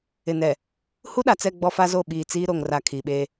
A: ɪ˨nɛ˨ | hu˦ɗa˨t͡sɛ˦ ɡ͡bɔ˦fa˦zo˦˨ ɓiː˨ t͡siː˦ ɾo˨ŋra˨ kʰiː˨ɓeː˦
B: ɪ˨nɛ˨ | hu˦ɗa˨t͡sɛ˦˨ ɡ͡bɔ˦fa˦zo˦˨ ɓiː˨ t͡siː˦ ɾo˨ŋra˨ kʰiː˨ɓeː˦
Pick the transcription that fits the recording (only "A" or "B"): B